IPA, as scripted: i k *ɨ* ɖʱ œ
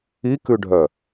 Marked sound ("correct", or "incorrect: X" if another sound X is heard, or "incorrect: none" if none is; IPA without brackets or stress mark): incorrect: ʉ